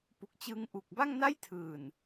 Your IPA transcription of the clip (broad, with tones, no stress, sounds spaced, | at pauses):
p u˨˩ k̚ t͡ɕ ɯː˧ ŋ ʔ u˨˩ k̚ b a˥˩ ŋ n a˥˩ j tʰ ɯː˨˩ n